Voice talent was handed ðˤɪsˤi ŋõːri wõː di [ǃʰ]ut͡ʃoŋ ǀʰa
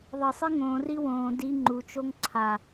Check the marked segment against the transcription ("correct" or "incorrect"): incorrect